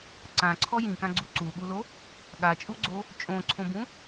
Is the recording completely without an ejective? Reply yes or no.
no